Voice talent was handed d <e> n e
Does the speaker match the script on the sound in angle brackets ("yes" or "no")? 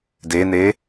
yes